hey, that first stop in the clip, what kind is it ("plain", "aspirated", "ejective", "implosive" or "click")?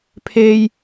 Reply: aspirated